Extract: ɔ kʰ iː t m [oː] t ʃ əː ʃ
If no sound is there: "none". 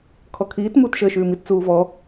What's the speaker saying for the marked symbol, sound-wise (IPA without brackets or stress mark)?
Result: uː